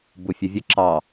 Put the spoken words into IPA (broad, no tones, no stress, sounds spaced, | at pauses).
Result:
b u fʲ ə vʲ ə ǁ ɑ